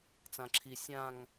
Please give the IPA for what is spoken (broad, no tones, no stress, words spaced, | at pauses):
t͡sãǁʰi sʲãŋ